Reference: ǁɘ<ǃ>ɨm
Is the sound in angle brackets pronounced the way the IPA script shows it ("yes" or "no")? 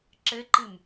yes